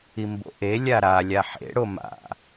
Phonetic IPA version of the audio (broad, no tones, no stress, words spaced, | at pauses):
imbo̰ʔe lʲaɾa lʲaħḛ ɽoma̰